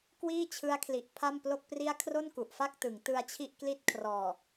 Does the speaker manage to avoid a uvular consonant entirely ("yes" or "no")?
yes